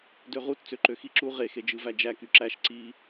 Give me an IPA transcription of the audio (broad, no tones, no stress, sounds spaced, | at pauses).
d ø ʁ u t t͡s ø ǃ ø x i ǁ u ʁ e x e d͡ʒ ɯ v æ d͡ʒ æ k y ǁ æ ʃ ǀ i